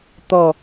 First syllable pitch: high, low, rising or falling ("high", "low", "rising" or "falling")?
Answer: falling